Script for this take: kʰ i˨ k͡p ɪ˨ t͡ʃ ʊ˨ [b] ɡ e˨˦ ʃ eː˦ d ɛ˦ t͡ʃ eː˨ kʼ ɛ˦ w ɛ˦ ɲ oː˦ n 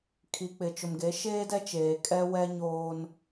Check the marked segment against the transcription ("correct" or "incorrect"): incorrect